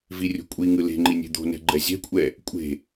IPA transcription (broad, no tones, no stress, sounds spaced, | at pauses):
v i rʲ o̤ kʷʼ i ŋ ɯ l e̤ ŋ͡ǃ i nʲ e̤ d̪ o̤ n ɛ̤ ɡ͡ǃ ɛ zʲ ɛ̤ kʷʼ ɛ | kʷʼ e̤